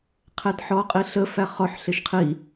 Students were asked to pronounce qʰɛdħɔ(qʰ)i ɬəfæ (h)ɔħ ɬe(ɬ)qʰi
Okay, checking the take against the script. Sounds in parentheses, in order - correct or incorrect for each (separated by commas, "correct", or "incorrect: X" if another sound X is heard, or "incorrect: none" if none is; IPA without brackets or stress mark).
incorrect: qʼ, incorrect: χ, incorrect: ʃ